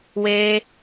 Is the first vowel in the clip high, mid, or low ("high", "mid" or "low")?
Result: mid